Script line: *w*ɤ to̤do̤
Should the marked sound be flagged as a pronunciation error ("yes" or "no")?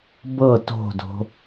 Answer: yes